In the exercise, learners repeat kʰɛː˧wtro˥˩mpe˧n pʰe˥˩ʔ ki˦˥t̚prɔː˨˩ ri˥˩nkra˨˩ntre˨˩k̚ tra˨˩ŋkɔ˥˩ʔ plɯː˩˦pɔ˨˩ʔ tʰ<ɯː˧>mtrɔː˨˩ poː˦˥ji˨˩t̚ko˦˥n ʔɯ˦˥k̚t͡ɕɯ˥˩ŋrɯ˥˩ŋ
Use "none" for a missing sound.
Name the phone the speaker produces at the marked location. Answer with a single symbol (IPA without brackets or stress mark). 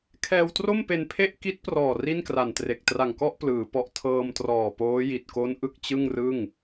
ɤː˧